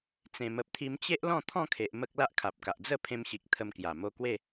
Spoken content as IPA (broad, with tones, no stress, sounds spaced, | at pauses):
t͡s ẽ˨˩ m ə˨ p̚ t̪ʰ i˧ m t͡ɕ e˦ ʔ l ɔ̃˥˧ t̪ʰ ɔ̃˥˧ kʰ e˨ ʔ m ə˦ k̚ l a˦ ʔ kʰ a˨ p̚ k a˨ ʔ d͡z ə˥˧ pʰ ẽ˧ m ɕ i˨ k̚ t̪ʰ ə˧ m k j a˨˩ m o˧ k w e˥˧